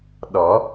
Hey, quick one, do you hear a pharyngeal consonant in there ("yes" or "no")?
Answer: no